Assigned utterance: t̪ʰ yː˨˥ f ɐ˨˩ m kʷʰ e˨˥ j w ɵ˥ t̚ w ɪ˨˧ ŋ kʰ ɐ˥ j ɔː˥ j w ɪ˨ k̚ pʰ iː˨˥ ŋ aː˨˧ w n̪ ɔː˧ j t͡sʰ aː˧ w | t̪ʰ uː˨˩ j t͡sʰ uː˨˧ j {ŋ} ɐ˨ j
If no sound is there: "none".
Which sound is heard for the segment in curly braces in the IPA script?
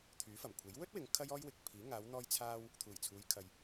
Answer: kʰ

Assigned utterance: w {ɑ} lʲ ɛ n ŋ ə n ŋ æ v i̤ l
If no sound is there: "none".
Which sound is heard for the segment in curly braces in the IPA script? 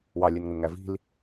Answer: ɑ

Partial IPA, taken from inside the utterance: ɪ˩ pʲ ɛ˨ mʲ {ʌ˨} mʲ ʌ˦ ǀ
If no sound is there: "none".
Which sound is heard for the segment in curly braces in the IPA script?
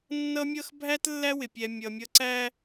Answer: ʌ˨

